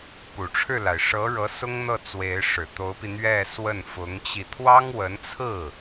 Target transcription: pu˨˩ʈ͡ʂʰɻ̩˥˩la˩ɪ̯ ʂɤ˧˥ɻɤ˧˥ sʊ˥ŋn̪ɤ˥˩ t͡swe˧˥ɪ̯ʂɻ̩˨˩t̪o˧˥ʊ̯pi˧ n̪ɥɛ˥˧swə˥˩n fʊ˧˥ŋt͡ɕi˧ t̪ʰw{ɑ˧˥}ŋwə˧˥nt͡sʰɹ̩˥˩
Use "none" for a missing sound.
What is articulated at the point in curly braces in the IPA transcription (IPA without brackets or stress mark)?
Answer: ɑ˥